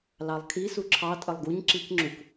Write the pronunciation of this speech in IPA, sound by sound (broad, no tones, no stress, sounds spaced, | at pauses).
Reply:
l ɑ lˠ kʰ i s u ǁʰ ɑ tʼ ə lˠ ɡ u ɲ ǁ i k ŋ͡ǁ u k